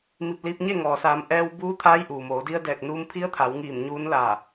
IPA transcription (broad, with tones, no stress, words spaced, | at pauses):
mi˧˩p̚liː˧p̚ɲe˥˨ ŋɔː˩saː˩˧m ʔɛː˧w buː˧˥t̪ʰaː˧˥jʔuː˩moː˩˧ di˧ə̯dɛː˧˩k̚ nuː˧mpʰi˧˥ə̯t̪ʰa˩˧wŋiː˧˩m ɲuː˧˥nlaː˧˩